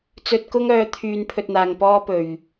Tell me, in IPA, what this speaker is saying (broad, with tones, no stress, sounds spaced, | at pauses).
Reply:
t͡s ɵ˧ t̚ k ʊ˥ ŋ œː˨˧ t̪ʰ yː˧ n pʰ ɵ˧ t̚ n̪ aː˨ ŋ p ɔː˥ p ɵ˨˩ ɥ